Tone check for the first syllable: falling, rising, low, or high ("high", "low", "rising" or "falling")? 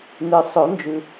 low